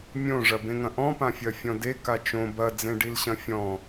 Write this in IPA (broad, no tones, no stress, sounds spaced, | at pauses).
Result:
mʲ õ ʐ ɐ b ẽ ŋ ɐ̃ ʔ ɔ̃ p ã fʲ ɐ fʲ ɔ̃ d e k a t͡ʃ õ b ɐ d͡z ẽ ɖ i l ɕ ɐ̃ fʲ ɔ̃